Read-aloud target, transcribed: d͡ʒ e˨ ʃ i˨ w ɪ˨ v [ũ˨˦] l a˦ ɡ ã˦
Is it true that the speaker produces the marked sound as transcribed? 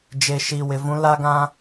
yes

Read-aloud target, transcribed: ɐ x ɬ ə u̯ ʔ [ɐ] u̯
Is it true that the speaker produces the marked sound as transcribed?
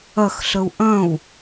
no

